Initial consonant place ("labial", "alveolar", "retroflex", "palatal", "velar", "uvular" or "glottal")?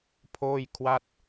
labial